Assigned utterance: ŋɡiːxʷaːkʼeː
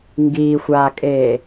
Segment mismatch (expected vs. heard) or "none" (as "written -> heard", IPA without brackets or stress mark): none